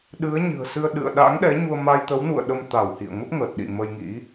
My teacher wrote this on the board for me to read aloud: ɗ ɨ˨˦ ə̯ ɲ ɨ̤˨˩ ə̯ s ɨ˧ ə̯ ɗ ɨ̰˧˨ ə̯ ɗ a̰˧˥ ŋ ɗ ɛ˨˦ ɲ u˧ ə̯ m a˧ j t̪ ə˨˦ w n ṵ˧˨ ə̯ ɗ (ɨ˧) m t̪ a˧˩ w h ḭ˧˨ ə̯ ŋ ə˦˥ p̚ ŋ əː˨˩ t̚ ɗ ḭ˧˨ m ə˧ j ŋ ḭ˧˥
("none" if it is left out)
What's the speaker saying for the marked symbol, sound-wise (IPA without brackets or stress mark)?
ə˧